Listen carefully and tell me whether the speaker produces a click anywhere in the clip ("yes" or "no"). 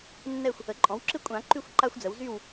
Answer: yes